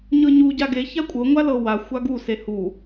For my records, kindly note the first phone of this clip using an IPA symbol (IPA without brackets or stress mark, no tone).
ɲ